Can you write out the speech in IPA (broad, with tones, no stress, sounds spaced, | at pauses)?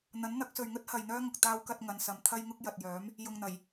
n̪ ɐ˨˥ n n̪ ɐ˨˥ k̚ s ɵ˨ ɥ ŋ ɵ˥ t̚ h ɐ˨ j n̪ œː˥ ŋ ʊ˨ k̚ t̪ aː˥ w k ɐ˥ t̚ ŋ ɐ˧ n s ɐ˧ m t̪ʰ ɐ˥ j ŋ ʊ˥ k̚ j ɐ˨ t̚ j œː˨˥ m | j ʊ˨ ŋ n̪ ɐ˨˩ j